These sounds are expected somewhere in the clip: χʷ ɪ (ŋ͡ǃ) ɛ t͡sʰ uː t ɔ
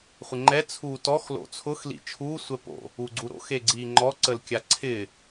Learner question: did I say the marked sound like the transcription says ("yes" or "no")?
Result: yes